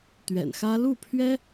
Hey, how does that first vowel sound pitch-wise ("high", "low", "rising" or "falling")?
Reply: low